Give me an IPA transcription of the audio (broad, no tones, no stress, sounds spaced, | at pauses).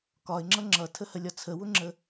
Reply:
k ɒ ɪ̯ ŋ͡ǁ ʌ ŋ͡ǁ ʌ tʰ ə h ə lʲ ɒ t͡sʰ ə w ʊ ŋ͡ǁ ə